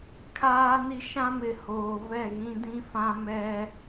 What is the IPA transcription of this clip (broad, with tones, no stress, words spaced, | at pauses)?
kʰaː˦ni˦ ʃã˦mɪ˨ hoː˨vɛ˦˨ɣĩ˦dĩ˦ fã˦ mɛ˦